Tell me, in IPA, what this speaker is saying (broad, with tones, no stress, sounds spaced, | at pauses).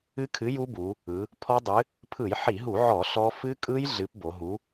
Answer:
ɨ˦˥ kʰ ɨ˨˥ j u˦˥ b u˩˧ | ɯ˩˧ | pʰ ɔ˦˥ dˤ ɨ˨˥ | pʰ ɯ˧˩˧ j ħ i˧˩˧ ɦ u˧˩˧ ʕ ɔ˧˩˧ ɬ ɔ˦˥ f ɨ˦˥ kʼ ɯ˦˥ j ɮ ɨ˨˥ p b o˩˧ ɦ u˨˥